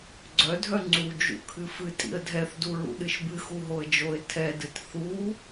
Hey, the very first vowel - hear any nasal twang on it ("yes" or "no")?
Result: no